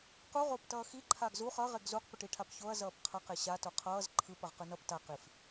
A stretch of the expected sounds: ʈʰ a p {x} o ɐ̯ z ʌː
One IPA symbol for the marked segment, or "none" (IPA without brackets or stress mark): ç